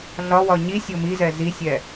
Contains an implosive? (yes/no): no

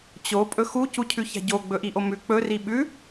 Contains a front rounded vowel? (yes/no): no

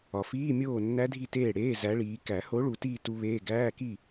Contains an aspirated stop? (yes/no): no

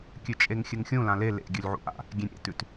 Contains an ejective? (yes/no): yes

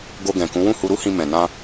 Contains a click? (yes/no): no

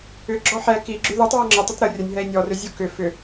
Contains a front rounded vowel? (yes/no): yes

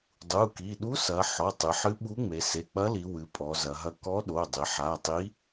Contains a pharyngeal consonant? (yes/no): yes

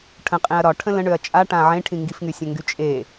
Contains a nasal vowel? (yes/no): yes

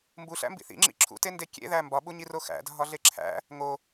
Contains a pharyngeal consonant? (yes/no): no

